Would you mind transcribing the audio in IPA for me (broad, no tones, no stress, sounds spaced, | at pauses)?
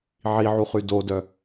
ʕ i ʕ u χ y d o d œ